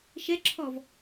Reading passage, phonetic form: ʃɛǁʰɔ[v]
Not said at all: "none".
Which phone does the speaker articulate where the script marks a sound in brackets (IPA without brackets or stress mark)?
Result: v